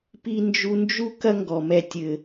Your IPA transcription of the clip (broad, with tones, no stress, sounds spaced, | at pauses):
p i˧ n d͡ʒ u˧ n d͡ʒ u˦ k ɐ˦ ŋ ɡ ɔ˨ m ɛ˧ tʲ ɘ˧